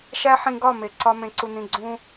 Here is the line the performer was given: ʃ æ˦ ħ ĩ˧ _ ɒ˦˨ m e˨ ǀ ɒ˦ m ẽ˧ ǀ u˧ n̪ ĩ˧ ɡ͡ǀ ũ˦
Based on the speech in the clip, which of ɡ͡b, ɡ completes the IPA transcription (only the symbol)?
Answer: ɡ